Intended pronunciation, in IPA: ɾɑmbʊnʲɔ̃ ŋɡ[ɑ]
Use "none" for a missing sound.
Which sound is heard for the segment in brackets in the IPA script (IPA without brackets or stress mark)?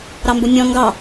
ɑ